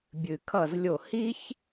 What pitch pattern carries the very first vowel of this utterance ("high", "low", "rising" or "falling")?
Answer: low